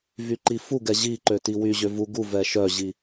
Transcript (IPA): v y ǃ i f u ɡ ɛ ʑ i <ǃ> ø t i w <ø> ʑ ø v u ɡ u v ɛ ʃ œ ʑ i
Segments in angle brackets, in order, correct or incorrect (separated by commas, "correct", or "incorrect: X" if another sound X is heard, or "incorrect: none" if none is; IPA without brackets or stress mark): correct, incorrect: y